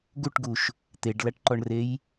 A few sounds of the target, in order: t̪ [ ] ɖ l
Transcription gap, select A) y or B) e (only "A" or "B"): B